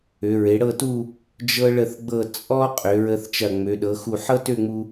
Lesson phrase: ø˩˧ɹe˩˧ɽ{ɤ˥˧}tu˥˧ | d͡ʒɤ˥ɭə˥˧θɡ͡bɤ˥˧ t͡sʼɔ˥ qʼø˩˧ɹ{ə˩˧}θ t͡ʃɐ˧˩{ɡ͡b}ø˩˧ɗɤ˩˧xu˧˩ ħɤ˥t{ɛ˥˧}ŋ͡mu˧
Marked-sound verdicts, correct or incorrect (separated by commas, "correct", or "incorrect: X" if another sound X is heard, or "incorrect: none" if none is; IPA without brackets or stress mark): correct, incorrect: ə˧, incorrect: ŋ͡m, incorrect: ø˥˧